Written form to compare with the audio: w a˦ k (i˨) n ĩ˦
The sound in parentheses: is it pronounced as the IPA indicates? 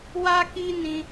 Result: no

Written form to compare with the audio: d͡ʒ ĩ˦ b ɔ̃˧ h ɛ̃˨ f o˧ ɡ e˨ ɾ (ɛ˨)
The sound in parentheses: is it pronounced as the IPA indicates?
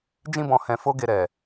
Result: yes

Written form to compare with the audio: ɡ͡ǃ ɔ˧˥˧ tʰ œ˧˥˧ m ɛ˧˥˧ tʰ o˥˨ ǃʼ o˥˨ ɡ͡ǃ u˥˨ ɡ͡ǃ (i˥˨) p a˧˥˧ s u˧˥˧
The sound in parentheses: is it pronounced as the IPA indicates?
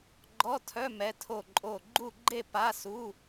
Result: no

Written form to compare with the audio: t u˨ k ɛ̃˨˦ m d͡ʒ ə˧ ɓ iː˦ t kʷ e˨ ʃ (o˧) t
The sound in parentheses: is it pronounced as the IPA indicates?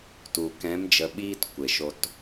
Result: yes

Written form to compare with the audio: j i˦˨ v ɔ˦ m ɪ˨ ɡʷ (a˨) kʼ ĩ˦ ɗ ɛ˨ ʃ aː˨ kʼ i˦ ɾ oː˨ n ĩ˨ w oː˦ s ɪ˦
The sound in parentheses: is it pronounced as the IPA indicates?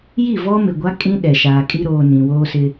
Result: no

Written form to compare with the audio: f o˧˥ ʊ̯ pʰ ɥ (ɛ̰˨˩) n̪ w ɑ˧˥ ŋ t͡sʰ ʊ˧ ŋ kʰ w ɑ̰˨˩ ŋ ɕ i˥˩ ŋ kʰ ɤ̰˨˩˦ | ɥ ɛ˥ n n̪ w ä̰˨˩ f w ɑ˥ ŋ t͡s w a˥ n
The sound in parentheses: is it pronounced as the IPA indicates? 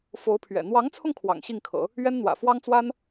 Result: yes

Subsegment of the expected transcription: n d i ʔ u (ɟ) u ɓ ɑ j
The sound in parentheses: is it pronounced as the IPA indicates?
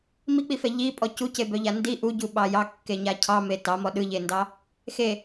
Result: yes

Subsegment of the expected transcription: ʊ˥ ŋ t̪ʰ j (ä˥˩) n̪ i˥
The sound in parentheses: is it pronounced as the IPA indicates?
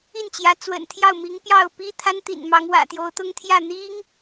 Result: yes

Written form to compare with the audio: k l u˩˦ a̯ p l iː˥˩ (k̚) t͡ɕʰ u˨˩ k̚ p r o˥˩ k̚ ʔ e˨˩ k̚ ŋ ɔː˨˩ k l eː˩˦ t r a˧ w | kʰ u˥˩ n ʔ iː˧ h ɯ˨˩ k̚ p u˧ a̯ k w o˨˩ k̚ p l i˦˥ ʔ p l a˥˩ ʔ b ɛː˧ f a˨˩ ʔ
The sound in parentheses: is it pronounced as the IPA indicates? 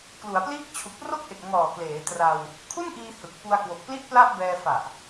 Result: yes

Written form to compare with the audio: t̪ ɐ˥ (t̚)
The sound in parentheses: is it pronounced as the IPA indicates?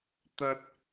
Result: yes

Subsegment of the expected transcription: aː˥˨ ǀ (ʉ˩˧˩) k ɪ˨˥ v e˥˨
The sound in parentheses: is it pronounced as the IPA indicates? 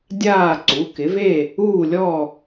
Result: no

